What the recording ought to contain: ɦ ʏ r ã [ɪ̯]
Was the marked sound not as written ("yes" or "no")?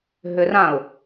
yes